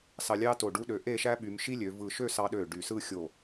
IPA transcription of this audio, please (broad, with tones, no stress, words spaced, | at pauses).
sɑ˧lʲɑ˥to˧˩ ɖu˧ɗø˩˧ ʔe˥˧ʃæ˥ɓy˩˧m ʃi˥lʲø˩˧vɯ˧˩ ʃø˥˧sɑ˧ ɗø˧˩ ɖy˧˩ sɯ˥˧xʲo˧˩